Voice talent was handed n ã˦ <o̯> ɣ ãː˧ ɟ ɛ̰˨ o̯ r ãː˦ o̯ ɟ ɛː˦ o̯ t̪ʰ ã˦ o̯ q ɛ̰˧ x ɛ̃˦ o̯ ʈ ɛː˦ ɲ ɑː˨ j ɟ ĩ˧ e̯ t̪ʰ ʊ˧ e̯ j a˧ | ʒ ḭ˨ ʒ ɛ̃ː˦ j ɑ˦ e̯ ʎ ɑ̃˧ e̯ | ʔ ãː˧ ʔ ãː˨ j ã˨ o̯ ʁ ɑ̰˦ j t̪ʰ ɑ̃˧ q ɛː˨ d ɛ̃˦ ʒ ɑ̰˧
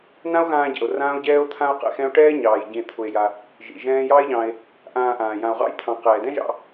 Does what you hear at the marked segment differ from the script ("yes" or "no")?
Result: no